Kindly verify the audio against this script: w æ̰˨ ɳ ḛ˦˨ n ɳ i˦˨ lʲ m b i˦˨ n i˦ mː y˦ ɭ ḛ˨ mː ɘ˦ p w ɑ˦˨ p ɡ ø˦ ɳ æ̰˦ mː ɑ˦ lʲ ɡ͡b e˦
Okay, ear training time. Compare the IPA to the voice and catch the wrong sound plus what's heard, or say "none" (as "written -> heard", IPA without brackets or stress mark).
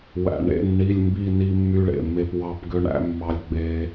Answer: ɘ˦ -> e˦